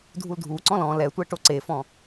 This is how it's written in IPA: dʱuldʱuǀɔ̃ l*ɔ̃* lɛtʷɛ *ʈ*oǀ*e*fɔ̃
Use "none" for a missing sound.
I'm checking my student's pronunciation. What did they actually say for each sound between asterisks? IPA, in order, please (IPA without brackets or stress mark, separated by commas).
ɔ̃, ʈ, e